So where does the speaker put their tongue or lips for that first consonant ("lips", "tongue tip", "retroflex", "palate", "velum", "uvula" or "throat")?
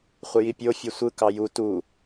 uvula